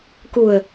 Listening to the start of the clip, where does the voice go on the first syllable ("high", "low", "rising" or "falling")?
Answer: low